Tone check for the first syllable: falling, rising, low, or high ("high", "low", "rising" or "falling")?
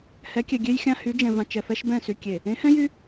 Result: rising